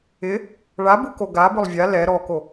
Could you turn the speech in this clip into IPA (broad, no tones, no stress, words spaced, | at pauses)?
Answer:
ɪ | ɭabuko ɡa bʊlˠvʲa lɛ ɾɔko